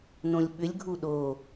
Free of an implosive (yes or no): no